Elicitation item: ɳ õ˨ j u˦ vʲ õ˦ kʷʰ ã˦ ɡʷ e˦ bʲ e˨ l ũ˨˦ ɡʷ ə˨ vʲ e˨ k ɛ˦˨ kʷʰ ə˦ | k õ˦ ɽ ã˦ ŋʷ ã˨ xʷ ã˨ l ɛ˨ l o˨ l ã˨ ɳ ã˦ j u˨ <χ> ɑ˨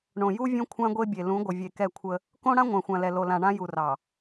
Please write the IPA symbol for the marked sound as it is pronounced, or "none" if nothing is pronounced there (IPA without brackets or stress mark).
r